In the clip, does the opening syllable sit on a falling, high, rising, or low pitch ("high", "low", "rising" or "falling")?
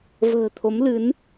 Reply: low